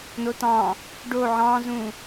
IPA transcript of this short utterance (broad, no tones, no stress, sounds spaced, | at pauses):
n o t ɑ̃ | ɖ o ʕ ɑ̃ z ũ